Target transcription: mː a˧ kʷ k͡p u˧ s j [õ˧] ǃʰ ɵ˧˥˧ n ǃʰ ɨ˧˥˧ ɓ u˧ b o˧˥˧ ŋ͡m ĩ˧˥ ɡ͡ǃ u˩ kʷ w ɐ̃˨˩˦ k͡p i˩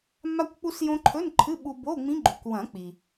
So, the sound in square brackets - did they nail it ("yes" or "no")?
yes